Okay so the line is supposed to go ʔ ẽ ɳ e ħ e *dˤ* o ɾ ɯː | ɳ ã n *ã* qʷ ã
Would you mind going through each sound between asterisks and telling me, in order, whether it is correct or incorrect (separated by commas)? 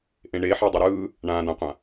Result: correct, correct